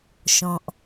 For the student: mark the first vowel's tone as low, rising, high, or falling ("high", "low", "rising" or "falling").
low